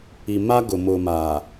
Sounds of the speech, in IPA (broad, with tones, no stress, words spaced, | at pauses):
i˨ma˦ɡʊ˨ mʊ˨ma˨